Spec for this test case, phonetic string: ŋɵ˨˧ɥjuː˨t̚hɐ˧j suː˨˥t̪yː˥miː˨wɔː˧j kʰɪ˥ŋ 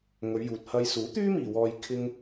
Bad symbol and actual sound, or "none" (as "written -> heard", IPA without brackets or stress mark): none